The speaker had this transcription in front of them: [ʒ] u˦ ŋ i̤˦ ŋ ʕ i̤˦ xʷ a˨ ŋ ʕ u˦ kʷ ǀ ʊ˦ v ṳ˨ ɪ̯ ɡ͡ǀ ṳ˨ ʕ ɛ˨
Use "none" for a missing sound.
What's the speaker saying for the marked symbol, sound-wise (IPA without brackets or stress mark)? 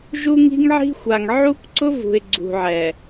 ʒ